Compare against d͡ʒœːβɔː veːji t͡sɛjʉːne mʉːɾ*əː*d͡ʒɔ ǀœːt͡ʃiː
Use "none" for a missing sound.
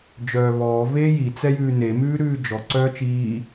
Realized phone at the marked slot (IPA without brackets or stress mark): ʉː